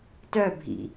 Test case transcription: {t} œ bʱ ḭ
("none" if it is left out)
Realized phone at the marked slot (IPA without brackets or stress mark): t